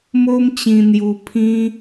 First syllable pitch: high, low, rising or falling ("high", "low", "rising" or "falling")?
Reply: high